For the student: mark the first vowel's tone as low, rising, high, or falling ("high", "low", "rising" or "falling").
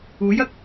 rising